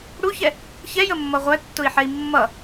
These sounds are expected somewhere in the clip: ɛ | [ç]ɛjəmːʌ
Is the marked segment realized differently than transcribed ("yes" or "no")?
no